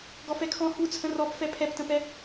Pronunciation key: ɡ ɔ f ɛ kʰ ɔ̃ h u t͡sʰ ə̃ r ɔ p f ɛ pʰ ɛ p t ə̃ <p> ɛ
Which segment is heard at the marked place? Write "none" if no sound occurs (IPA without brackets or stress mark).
p